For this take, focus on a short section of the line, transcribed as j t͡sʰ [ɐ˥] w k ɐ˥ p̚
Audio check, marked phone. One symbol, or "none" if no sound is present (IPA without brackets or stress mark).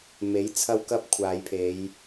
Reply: ɐ˥